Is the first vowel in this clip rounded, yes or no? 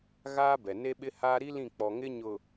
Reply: no